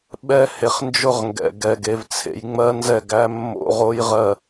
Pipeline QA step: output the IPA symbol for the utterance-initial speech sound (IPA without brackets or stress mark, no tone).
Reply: ɓ